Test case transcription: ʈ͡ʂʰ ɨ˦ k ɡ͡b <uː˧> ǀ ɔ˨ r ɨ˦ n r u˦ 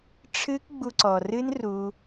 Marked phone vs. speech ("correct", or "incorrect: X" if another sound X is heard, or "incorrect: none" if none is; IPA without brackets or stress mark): incorrect: u˧